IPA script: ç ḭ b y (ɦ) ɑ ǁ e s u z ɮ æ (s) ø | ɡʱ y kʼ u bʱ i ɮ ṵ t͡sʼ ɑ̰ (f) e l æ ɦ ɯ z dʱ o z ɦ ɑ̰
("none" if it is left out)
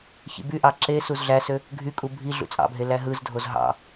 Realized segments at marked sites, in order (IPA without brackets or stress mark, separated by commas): ʔ, s, bʱ